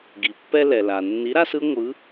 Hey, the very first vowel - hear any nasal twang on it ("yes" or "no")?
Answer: no